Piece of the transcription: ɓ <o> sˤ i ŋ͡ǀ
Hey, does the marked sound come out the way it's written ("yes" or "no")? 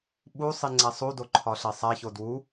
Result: no